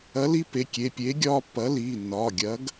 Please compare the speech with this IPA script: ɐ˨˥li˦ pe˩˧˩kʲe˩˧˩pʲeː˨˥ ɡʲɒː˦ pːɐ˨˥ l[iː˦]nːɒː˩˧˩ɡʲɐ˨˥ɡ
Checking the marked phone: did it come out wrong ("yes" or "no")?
yes